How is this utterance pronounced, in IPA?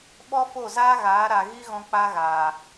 ɓ ɔ˦ f o˦˨ z aː˦ ɣ aː˨˦ ɾ a˨ ɣ i˦ ɣ ɔ̃˧ k͡p a˦ ɣ aː˨

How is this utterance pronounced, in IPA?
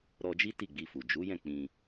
ɾ ɔ˧ d͡ʒ i˦ t i˦˨ ɡ͡b i˧ f u˨ d͡ʒ u˨˦ j ɛ̃˦˨ k͡p ĩ˧

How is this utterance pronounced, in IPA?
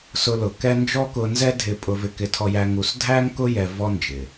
s ʊ˧ l ʊ˨ k ɛ˦ n d͡ʒ ɔ˦ k ʊ˧ n z ɛ˦ dʱ ɪ˦ pʼ ʊ˧ v ɪ˧ k ɪ˧ tʰ ɔ˧ j æ˧ ŋ u˧ s dʱ æ˦ ŋ k ʊ˦ j ɛ˧ v ɔ˦ n d͡ʒ ɪ˨

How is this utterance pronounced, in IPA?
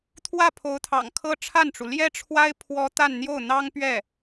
t̪ʰ w ä˥˩ pʰ o˧˥ ʊ̯ t̪ʰ ɑ̰˨˩ ŋ kʰ ɤ˥ ʈ͡ʂʰ a˥˩ n ʈ͡ʂ u˩ l j ɛ˥ ʈ͡ʂʰ w a˥ ɪ̯ pʰ w ɔ˥ t̪ a˥˧ n n̪ j o˥˩ ʊ̯ n̪ ɑ˥ ŋ p ɥ ɛ˥˩

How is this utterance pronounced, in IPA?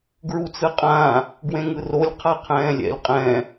ɡ ɹ u t͡s ɯ qʼ ãː | ɡ w ẽ ŋ ɯ r o lʲ qʰ a qʰ ɛ̃ː lʲ ɛ̰ lʲ qʼ ɛ̃ː

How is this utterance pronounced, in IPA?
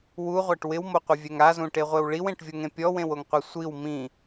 w u ʁʷ a ʈ w ɪ w m o qʷ ɪ vʲ ɛ ŋ a z ũ ʈ e ʁʷ e w ɭ i w ẽ ʈ vʲ o ŋ ẽ pʲ ɔ w ẽ w o ŋ qʷ ɛ sʷ i w m ĩ

